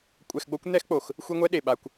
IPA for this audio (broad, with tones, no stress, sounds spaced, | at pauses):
kʷʼ ɛ˧ x ɡ͡b o˦ kʷ n̪ ɛ˦ x k͡p o˨ x | xʷ i˦ ŋʷ ɛ˦ ɗ e˨ ɓ a˧ kʷ